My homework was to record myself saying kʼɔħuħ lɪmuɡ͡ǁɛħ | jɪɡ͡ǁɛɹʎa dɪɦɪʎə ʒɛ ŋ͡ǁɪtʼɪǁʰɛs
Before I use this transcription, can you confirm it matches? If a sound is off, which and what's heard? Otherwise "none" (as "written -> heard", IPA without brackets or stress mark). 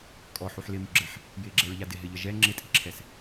none